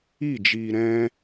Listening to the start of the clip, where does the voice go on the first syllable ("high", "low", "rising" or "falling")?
falling